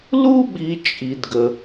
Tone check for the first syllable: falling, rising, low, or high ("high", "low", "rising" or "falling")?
high